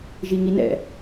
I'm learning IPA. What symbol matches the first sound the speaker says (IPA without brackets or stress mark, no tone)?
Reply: ʒ